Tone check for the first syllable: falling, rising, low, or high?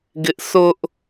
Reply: high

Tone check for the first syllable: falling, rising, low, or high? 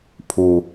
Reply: low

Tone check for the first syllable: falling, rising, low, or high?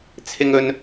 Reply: high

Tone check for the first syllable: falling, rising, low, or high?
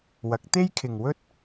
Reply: rising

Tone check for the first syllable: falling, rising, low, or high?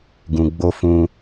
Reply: low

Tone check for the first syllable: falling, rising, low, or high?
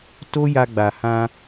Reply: high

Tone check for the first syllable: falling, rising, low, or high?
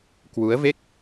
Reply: rising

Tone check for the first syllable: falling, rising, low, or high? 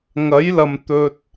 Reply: rising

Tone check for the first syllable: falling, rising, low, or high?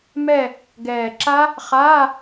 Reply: falling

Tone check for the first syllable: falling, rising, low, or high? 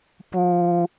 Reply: high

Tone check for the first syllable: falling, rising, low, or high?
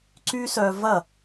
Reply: high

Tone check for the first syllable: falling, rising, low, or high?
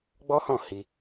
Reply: high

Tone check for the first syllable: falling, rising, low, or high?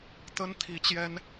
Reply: high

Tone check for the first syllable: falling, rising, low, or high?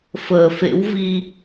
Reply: low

